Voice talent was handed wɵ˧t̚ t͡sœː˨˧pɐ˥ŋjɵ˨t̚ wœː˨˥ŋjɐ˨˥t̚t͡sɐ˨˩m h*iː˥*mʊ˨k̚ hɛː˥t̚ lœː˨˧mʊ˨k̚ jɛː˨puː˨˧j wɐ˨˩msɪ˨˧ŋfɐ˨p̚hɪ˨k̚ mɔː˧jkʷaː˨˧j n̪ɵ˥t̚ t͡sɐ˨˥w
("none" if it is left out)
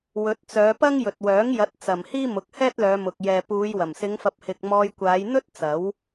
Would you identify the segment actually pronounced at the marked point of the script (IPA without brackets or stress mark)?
iː˥